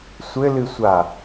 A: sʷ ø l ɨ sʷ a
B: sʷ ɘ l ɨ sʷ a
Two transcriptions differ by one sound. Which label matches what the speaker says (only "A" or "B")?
B